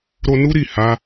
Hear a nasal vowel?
no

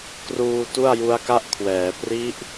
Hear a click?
no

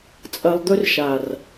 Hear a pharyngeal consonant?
no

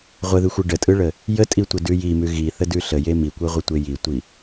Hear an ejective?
yes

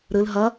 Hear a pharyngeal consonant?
no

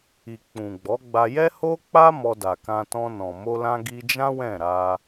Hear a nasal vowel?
yes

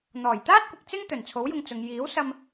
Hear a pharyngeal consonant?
no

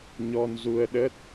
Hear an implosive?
yes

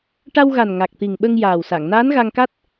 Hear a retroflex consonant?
yes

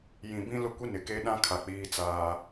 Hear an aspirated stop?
yes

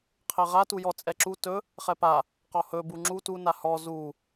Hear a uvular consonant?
yes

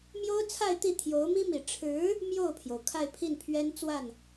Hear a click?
no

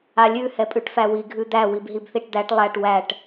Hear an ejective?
yes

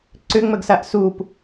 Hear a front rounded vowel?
yes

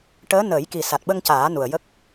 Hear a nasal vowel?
no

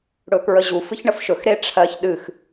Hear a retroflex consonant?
yes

